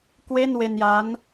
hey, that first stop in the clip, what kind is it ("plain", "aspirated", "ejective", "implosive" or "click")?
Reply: plain